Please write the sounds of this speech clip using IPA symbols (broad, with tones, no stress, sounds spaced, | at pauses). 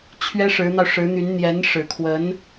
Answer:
t͡ɕʰ ɥ ɛ˥ ʂ ɻ̩˧˥ n̪ ɑ˧ ʊ̯ ʂ ɻ̩˧˥ n̪ y˧˥ n n̪ j ɛ˧˥ n ʂ ɻ̩˨˩ kʰ w ə˧˥ n